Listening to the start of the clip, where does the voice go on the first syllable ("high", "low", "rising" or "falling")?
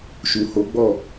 low